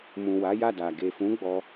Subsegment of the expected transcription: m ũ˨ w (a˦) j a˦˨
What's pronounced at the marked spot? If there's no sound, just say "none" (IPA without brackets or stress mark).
a˨˦